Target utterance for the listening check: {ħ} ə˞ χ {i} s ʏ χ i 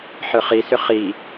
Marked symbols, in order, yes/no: yes, yes

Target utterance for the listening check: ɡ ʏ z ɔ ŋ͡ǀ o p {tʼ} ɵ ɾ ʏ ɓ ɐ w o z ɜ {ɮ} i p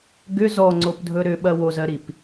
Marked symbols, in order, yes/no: no, no

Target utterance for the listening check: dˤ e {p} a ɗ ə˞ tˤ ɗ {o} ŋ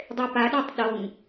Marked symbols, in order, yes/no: yes, yes

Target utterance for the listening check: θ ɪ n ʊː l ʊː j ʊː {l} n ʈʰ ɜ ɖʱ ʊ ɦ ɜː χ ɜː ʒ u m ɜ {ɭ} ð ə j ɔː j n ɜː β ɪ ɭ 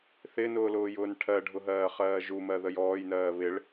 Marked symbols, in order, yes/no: no, no

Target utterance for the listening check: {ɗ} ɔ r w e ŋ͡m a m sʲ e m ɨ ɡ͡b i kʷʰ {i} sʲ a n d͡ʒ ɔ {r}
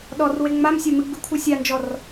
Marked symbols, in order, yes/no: yes, no, yes

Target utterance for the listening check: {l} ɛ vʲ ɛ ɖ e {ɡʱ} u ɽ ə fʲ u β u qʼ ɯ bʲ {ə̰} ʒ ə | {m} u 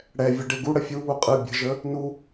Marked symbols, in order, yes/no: no, no, no, no

